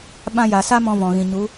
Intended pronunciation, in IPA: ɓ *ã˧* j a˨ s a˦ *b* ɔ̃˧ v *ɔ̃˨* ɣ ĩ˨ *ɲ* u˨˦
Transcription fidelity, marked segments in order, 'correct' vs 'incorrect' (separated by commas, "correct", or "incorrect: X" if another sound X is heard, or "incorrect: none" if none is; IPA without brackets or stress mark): correct, incorrect: m, correct, correct